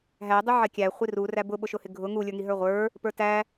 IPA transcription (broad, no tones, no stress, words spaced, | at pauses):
ɦædˤʊ ʕɪkʲæχʷi ru ræbʊɓʊʃʊ hɪɡʱʊ ŋulʲə˞ŋi ɦə˞ʁʷə˞ | pə˞tæ